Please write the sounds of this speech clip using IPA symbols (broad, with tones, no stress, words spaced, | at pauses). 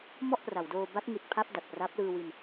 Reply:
mɔ˥˩ʔpra˩˦wdoː˧ ba˦˥t̚ŋi˨˩t̚ pʰa˥˩p̚ da˨˩t̚pra˦˥p̚ lɯː˧wi˧n